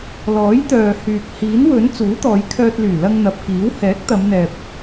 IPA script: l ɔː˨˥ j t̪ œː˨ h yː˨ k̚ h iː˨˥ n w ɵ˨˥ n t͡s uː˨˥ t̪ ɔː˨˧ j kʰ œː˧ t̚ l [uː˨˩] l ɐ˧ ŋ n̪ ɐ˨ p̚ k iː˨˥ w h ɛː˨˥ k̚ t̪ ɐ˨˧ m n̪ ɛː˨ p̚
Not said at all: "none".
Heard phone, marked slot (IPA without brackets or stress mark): yː˨˩